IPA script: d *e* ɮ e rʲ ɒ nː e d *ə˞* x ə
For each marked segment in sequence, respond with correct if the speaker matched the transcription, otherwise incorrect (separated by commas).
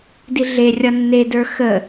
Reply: incorrect, correct